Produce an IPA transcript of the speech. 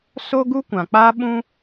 so˦ɡu˦kʷã˨ k͡paː˦ɓũ˦

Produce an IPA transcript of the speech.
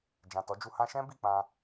d͡ʒã˨tɔ˨˦d͡ʒu˧ hã˧ʃɛ̃˦ bi˦˨k͡pã˧

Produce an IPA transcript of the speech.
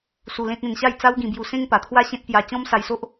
su˧lẽ˦t̚ẽ˧n ɕa˥˧jt͡sa˦wɡĩ˧bju˧ sẽ˦ŋpa˨˩t̪ʰwa˦ ɕẽ˦t̚pja˧ t͡ɕɔ̃˦msa˧jso˦ʔ

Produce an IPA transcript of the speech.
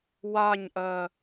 waɲʔɜ

